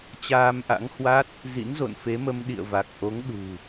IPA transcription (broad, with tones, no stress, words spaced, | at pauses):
t͡ɕaː˧mʔa̰˧˥ŋhwa˦˥t̚ | zḭ˧˥nzo̰˧˨nfe˨˦mə˧m ɗḭ˧˨ə̯va˨˩k̚ʔo˨˦ŋ ɗṳ˨˩